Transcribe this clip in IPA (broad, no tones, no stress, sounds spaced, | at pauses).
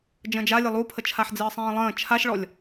d͡ʒ ə̃ d͡ʒ a lʲ ə lˠ u pʰ ə t͡ʃʰ a ħ d͡z ɨː sˤ ĩː lˠ ə̃ː t͡ʃʰ a ʃ ɭ ɔ lʲ